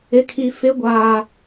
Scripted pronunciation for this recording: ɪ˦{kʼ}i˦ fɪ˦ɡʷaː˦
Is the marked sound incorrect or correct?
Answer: incorrect: kʰ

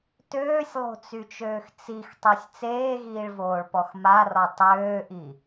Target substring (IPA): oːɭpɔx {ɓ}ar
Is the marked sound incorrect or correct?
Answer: incorrect: m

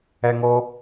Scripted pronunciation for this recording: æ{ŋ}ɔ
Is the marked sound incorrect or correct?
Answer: correct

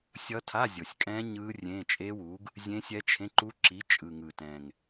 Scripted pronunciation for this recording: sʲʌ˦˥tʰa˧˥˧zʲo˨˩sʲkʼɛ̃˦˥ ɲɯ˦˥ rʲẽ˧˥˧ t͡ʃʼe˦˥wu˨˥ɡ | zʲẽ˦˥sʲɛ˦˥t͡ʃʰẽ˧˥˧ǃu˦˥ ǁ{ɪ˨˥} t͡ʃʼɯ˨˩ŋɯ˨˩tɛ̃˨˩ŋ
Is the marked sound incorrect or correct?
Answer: incorrect: i˨˥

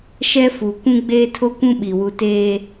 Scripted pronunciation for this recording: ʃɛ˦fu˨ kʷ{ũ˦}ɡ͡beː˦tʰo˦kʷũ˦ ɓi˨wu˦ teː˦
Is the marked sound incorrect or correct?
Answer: correct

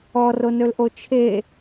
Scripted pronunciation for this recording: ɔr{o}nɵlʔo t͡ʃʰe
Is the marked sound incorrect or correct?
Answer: correct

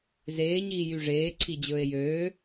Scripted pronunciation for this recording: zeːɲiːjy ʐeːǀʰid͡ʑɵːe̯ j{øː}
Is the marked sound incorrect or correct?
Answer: correct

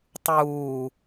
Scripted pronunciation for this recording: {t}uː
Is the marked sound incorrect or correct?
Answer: incorrect: tˤ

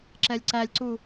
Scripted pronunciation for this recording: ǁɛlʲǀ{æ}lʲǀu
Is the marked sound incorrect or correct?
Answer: correct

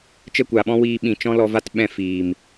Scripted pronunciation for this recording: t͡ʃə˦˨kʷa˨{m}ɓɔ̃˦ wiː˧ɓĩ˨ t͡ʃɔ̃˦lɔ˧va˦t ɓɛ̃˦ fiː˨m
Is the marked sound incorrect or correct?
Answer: incorrect: none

